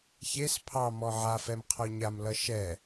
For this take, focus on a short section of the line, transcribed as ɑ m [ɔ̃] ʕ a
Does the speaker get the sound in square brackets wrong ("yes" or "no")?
yes